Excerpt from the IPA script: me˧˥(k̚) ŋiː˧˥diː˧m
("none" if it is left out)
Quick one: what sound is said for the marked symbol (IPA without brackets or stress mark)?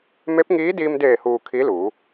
p̚